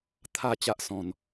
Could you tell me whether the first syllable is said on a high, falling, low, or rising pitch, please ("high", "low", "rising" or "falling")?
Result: falling